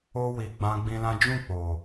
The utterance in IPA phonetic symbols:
o˧ w i˨ ɡ͡b ã˧ ɡ͡b ĩ˧ l ã˦ d͡ʒ ũ˦˨ k͡p o˨

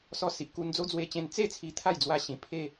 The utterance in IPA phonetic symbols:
s ɔ˧ s i˨ ʔ k u˧ n d͡z o˦ d͡z w e˧ t͡ɕ ẽ˧ n t͡s e˥˧ t͡sʰ i˧ t̪ʰ a˥˧ j d͡z w a˧ ɕ ĩ˧ pʰ e˥˧

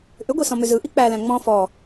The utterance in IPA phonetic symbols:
ʔ ʏ ɡʷ i s ɔ̃ m ʏ z ɯ ʔ i k͡p æ l æ̃ ŋ͡m ɔ̃ f ɔ

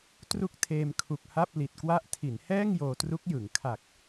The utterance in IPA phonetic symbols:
t r u˥˩ k̚ tʰ eː˧ m kʰ u˨˩ k̚ h a˥˩ p̚ l i˨˩ t̚ k w a˥˩ ʔ tʰ i˩˦ n h ɛː˥˩ ŋ j oː˧ t r u˦˥ k̚ j ɯ˩˦ ŋ kʰ a˨˩ k̚

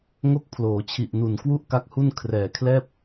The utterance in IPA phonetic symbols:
ŋ o˥˩ k̚ pʰ l oː˩˦ t͡ɕʰ i˨˩ ʔ n u˨˩ n k w u˥˩ ʔ k a˦˥ k̚ h u˥˩ n kʰ r ɛː˨˩ kʰ l ɛː˥˩ p̚

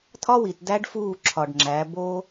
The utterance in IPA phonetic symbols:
tʰ ɒ˦ w i˨ t d æ˦ ɖ f uː˦˨ ǁʰ ɒ˨ ɖ ŋ͡ǁ æ˨˦ b o˦

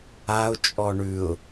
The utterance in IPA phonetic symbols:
a ʊ̯ t͡ʃʼ ɔ ɳ ʉ ʊ̯

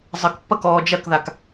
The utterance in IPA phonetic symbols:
zˤ ə k pː ɐ k ɔː d͡ʒ ɐ k ð a k

